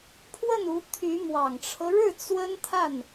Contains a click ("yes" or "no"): no